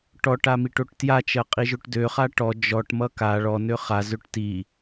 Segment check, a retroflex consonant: present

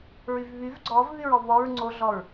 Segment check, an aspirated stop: absent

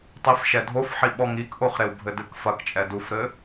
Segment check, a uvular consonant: present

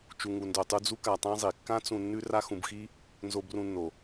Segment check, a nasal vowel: present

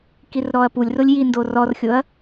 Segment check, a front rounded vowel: absent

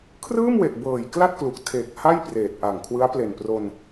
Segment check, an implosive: absent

